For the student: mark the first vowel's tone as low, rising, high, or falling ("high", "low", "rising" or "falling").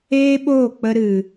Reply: high